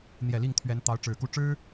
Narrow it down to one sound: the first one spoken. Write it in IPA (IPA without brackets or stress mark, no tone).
n̪